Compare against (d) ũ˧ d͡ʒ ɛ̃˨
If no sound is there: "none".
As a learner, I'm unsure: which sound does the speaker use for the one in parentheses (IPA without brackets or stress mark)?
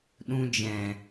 ɗ